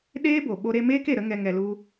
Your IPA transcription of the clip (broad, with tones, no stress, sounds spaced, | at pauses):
ɗ eː˦ b o˨ ɓ o˧ ɾ e˧ m eː˦ k e˨ ɾ ə˦ ŋ ɛ˧ ŋ ɛ˧ l u˦